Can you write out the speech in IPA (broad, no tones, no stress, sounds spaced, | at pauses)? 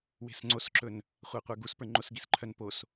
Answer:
w e̤ s ŋ͡ǀ o s ǁ ɵ n | χʷ a qʷ ə˞ ɡ u s p ə˞ ŋ͡ǃ o s ɡ i s ǃʰ œ n p o s